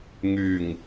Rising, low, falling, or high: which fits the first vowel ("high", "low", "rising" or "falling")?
low